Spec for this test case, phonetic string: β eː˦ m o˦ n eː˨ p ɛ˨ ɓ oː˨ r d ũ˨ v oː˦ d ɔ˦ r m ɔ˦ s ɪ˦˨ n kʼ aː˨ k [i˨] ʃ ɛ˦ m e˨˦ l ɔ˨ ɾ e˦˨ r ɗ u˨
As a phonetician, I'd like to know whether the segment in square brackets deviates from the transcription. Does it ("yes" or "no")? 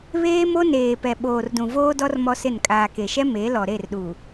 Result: yes